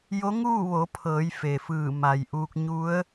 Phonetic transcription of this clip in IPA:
j o˧˥ ŋ uː˥˨ ʋ o˩˧ pʰ ɤː˩˧ j f e˩ f ɯː˧˩ m a˩ j ʔ uː˧ k̚ ɲ u˧˥ ə̯

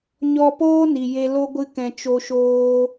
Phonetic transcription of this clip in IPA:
ɲ ɔ˧ p oː˦ n i˨ j e˧ l o˦ ɡʷ ɨ˧ k ɛ̃˨ t͡ʃ o˧ ʃ oː˧

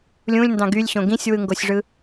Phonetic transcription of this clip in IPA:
lʲ ũ lʲ n d ɑ̃ ɡ y lʲ ɕ õ ɡ ĩ sʲ w ɯ ŋ ɡ o sʲ ʐ ɯ

